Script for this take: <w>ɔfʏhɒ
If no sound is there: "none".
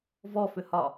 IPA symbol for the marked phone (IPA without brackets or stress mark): v